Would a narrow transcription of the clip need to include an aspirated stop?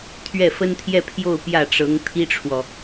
yes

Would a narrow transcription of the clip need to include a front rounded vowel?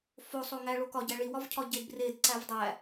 no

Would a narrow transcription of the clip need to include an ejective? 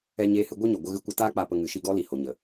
no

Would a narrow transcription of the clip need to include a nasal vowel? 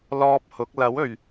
no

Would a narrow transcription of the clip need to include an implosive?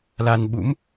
yes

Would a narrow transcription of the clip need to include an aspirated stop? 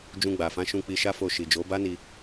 no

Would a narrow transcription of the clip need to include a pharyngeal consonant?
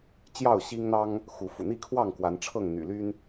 no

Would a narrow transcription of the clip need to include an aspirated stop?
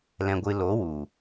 no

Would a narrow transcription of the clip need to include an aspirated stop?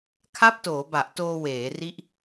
yes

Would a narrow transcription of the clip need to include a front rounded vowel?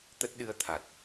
no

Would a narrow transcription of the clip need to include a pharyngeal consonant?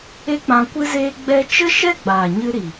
no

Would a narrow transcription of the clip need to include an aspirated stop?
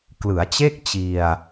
no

